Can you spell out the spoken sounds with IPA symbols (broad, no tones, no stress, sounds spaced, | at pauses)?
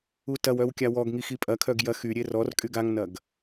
u t ɐ w œ w kʲ a w ɔ ɡ ŋ i x i pʼ ɐ kʰ œ ɡ j ɐ x y ɾʲ e r ɔ r kʼ y ɡ a ŋ n ɐ ɡ